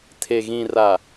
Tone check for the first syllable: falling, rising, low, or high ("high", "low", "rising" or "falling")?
low